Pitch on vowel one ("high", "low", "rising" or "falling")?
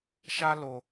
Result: high